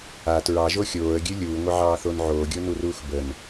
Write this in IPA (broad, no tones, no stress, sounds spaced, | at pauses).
a t ɹ ɑ ʒ o xʲ oː ə̯ ɡʲ ɨ lʲ uː ŋʷ ɪ ʕ ɑː θ o n ʕ oː ɡʲ o n u r uː x b ə n